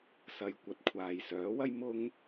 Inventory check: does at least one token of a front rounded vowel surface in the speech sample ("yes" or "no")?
yes